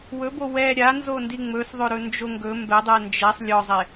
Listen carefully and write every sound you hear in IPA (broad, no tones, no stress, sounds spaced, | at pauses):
w ɵ b o w ɛ ɾʲ a n z o n d i ŋ͡m ɵ s ðˤ ɵ ɾ ɵ n d͡ʒ o ŋ ɡ ɵ m b ɛ dˤ ɛ n d͡ʒ ɛ sˤ lʲ ɔ zˤ e